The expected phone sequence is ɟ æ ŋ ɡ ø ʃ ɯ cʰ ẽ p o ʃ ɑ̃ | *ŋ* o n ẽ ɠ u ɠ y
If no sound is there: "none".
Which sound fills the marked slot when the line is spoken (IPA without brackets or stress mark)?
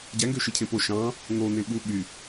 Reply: ŋ